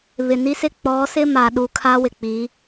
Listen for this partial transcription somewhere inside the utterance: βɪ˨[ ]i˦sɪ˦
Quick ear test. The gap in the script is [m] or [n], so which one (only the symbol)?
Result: n